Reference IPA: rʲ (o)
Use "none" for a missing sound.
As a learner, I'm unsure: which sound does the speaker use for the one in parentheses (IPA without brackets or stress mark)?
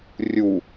u